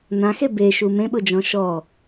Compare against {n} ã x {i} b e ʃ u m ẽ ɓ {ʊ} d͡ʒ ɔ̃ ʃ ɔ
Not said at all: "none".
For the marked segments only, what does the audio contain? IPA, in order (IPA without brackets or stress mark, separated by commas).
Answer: n, e, ʊ